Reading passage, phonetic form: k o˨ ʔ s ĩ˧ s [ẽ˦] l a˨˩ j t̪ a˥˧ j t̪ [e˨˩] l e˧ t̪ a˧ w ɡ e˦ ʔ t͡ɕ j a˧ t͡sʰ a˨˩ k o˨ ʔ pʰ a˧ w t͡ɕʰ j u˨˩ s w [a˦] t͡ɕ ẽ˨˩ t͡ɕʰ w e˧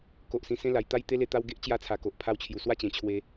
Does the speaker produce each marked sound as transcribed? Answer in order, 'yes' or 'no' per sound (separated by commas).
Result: yes, no, no